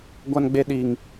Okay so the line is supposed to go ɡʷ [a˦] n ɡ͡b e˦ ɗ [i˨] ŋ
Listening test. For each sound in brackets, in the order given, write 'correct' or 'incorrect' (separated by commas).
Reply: correct, incorrect